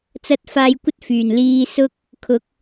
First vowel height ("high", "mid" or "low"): low